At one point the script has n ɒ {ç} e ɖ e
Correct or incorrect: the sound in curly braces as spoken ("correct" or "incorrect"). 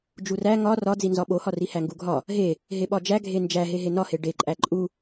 incorrect